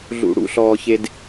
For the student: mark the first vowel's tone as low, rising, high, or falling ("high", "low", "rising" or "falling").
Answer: low